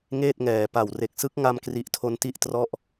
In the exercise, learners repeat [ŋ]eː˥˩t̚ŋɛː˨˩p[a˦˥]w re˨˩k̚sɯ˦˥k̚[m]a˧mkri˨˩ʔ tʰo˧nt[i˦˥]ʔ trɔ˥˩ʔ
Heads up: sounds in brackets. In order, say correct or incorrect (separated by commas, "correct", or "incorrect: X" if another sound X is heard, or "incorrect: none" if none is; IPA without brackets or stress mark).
correct, incorrect: a˨˩, incorrect: ŋ, correct